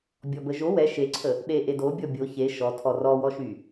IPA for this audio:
bʲ ɔ b ə ʒ o w ɛ ʃ e ǀʰ ə | ɗ e ʔ e d o bʲ ɔ bʲ o ç e ʃ ɔ tʰ ɔ r ɔ w ɔ ʃ y

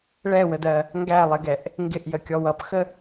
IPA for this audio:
ɭ ɛ w ə d ɜ | ŋ ɡ æ lˠ ɪ ɡ ɛ ʔ | ŋ ɡ ɪ ʔ j ə kʲ ɔ w ʌ p x ə

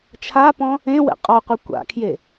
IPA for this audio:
t͡ʃʰ a p ɔ̃ | ẽ w ɛ̰ qʼ ɔ qʷ e kʷ a̰ kʰ j e

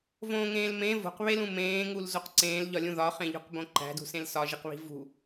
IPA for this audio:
v õː ŋ ẽː l m ẽ v o̤ q β e l ũ m ẽː ŋ u l z o q ǀ ẽː l ʎ ɒ lʲ ũ ð ɒ χ ẽ ʎ o̤ q b õ ǃ æ̤ d ṳ s ẽ l s ɒ ʒ i q β i̤ v ṳ

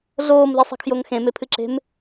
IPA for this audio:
ɮ oː m ð i sˤ e̤ kʰ j o ŋ x ẽ m e pʰ ɨ ǁ e̤ m

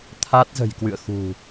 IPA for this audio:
t̪ʰ a˦˥ t̚ z ə̤˨˩ j k w ɨ̰˧˨ ə̯ x ṳ˨˩

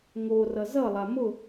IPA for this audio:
ŋ o r ʌ z ʌ lˠ a m ʊ

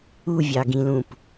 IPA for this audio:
u vʲ ɑ ɡ ĩ l ũ p

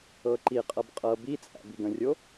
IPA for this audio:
ɤ ǃ i qʼ ɤ b qʼ ɤ b i t͡sʼ æ̰ b i ɡ ə̃ rʲ o

